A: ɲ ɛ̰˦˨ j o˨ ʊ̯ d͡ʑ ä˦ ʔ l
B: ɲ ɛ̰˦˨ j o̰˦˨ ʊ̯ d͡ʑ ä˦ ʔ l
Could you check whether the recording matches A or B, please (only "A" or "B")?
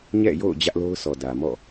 B